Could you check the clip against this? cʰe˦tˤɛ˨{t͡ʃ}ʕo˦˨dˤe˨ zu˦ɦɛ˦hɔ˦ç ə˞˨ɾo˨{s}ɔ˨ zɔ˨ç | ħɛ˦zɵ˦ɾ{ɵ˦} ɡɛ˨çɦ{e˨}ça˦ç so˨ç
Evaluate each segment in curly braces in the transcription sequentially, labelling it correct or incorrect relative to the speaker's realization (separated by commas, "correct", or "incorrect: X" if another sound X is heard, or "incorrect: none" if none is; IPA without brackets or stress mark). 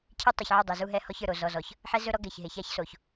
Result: incorrect: ç, incorrect: z, incorrect: ɔ˦, correct